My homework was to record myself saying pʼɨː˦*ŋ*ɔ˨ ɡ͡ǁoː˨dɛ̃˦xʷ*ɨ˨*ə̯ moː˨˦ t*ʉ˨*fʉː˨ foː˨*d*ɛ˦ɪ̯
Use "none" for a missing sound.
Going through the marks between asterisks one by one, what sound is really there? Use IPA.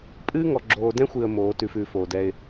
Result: ŋ, ɨ˨, ʉ˨, d

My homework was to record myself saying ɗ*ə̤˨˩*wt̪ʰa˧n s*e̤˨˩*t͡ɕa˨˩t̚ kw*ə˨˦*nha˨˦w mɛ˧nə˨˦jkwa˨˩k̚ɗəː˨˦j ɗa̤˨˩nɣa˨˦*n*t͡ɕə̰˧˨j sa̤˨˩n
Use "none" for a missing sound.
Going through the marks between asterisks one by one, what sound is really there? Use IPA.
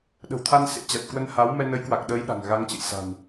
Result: ə̤˨˩, ḛ˧˥, ə˧, ŋ

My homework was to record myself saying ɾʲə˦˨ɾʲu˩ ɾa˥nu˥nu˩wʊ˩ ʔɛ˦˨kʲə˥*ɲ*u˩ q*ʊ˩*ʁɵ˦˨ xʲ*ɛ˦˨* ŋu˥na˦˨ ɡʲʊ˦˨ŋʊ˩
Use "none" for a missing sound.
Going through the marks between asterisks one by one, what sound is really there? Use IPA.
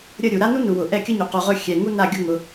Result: ɲ, u˩, ɛ˩

